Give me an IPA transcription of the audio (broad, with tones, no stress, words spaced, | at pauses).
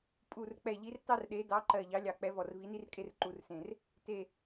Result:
pʼu˧˩rk͡pɛ˧˩ʎi˨˥r tɑ˥rɗe˨˥ dɑ˨˥ǃɜ˧˩ ʎɑ˨˥lʲɑ˧˩k͡pɛ˨˥ vɔ˧˩rvi˨˥ni˥rkʼe˥r ǃu˨˥rsẽ˧˩r | te˧˩